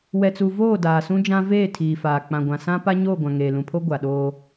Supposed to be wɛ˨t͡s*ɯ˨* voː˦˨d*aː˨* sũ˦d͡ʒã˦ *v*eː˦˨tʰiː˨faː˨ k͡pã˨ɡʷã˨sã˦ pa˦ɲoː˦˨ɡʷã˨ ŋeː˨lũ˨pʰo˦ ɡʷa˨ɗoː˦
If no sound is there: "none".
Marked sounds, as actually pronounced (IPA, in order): u˨, aː˨, v

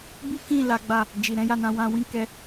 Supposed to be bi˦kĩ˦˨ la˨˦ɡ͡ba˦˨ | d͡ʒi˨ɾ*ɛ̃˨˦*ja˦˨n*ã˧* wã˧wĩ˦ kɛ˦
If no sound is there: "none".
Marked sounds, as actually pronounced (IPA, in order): ɛ̃˨˦, ã˧

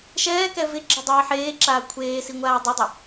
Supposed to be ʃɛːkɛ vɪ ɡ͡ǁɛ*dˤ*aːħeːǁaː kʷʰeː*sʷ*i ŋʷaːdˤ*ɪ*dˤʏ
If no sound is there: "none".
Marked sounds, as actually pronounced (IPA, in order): dˤ, s, ʏ

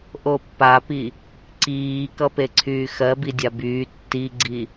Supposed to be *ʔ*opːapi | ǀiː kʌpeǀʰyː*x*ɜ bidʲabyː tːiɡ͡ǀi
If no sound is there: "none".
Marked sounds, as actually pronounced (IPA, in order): ʔ, x

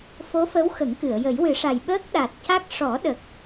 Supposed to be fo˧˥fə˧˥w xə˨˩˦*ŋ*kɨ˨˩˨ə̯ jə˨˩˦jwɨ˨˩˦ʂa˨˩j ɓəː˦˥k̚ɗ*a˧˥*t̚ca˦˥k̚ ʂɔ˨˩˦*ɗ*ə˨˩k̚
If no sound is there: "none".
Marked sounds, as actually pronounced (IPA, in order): ŋ, a˨˩, ɗ

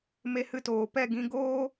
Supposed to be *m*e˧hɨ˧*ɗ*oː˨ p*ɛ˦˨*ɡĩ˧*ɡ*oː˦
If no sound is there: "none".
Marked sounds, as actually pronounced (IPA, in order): m, t, ɛ˦˨, ɡ

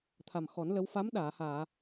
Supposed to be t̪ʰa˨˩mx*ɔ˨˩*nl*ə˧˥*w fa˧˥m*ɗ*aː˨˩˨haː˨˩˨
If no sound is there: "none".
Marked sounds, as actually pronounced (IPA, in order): ɔ˨˩˦, ə˧˥, ɗ

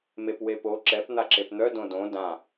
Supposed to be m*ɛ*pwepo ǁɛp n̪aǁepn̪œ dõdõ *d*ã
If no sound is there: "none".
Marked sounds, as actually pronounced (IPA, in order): e, d

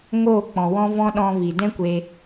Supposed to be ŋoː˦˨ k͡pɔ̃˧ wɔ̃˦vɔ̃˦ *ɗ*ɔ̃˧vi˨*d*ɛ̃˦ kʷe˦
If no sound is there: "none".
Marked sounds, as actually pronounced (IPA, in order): ɗ, d

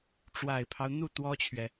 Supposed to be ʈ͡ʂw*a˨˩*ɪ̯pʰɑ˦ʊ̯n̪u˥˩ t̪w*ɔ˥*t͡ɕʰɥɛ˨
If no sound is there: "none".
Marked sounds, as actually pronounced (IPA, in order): a˨˩, ɔ˥

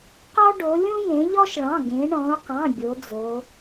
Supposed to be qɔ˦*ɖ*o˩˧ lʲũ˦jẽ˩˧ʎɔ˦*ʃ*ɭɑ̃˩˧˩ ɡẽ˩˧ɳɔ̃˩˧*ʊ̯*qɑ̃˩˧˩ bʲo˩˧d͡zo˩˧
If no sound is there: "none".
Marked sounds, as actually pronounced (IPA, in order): ɖ, ʃ, ʊ̯

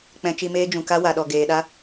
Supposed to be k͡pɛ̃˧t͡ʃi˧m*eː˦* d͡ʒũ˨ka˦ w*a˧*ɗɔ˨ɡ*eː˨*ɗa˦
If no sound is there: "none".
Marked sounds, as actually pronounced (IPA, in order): eː˦, a˨, eː˨

